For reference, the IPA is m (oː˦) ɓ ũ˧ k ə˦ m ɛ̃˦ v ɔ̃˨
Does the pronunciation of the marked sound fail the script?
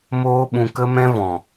no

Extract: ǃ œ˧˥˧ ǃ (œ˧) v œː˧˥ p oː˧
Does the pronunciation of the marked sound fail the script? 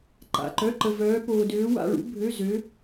yes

